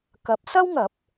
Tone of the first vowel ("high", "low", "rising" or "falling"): rising